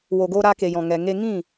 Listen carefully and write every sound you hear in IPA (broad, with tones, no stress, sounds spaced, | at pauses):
w o˨ ɡ o˧ ɾ a˧ k e˨ j ɔ̃˨ ŋ ɛ˨ ŋ e˧ ŋ ĩ˦˨